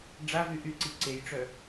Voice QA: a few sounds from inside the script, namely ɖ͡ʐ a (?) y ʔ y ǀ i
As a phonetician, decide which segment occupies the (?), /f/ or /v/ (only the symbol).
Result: v